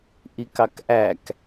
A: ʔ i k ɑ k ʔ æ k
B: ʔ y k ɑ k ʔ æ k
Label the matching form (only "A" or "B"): A